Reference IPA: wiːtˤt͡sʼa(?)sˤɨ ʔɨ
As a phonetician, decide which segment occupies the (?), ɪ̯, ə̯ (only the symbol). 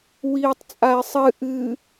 ɪ̯